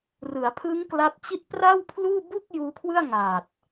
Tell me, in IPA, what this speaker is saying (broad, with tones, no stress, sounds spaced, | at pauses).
r ɯ˩˦ a̯ pʰ ɯ˦˥ ŋ k l a˦˥ t̚ t͡ɕ i˥˩ t̚ p r a˥˩ w pʰ l uː˥˩ b u˥˩ k̚ j uː˦˥ kʰ w ɯ˥˩ a̯ ŋ aː˨˩ t̚